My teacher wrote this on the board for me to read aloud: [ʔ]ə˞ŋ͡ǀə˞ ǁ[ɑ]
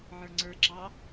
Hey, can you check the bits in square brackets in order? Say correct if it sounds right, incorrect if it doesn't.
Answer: incorrect, correct

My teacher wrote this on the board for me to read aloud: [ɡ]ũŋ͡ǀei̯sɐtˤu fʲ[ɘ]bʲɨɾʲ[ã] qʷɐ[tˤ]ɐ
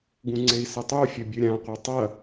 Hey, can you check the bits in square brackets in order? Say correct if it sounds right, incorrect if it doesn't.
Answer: correct, correct, correct, correct

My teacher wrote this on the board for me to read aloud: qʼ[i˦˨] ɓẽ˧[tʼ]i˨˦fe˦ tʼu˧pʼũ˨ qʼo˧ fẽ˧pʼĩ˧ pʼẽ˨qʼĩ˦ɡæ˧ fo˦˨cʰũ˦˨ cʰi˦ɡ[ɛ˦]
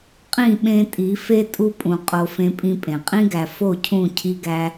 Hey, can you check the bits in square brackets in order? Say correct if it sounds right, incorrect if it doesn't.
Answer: incorrect, correct, incorrect

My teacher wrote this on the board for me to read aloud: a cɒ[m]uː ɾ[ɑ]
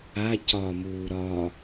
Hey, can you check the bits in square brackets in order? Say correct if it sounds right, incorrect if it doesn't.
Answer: correct, incorrect

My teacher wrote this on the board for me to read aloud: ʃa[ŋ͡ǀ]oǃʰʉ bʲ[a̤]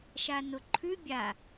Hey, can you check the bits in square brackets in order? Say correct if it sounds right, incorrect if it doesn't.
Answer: incorrect, incorrect

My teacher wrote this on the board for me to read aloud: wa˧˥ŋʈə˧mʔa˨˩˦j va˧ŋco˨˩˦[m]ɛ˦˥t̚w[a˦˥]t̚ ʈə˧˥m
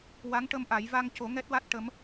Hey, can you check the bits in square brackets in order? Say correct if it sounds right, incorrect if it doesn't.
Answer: incorrect, correct

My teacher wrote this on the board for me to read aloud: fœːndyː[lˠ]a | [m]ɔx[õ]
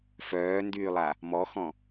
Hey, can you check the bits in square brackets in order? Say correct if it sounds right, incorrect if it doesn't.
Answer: correct, correct, incorrect

